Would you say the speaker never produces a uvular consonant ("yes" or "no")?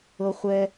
no